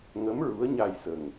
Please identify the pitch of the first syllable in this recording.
rising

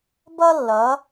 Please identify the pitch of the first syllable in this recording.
high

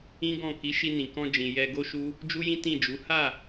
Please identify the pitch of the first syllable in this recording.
high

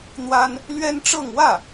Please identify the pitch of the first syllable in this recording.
high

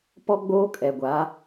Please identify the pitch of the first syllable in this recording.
high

